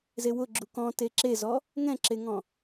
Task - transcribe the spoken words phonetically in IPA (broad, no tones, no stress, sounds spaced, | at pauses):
z e w ʊ ɡ͡ǁ u k ɔ̃ t e ǁ e z ɔ | ŋ ɛ̃ ǁ e ŋ ɔ̃